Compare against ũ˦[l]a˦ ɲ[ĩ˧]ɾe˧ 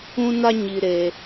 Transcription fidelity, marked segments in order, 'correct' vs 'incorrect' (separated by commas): incorrect, incorrect